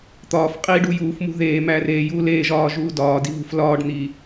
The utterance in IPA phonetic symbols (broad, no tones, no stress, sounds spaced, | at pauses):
t̪ ɒː f qʼ iː ɖ uː j uː f m ṳ ð eː m æː r eː j uː l eː ʒ ɒː ʒ uː d ɒː d i β ṳ f l ɒː ɖ n̪ iː